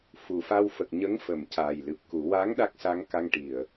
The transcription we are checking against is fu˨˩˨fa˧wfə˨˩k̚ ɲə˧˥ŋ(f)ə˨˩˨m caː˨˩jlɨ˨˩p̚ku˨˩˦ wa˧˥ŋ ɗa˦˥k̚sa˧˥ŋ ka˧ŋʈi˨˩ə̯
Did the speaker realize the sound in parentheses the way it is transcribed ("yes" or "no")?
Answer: yes